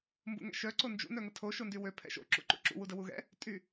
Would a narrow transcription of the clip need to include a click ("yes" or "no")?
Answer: yes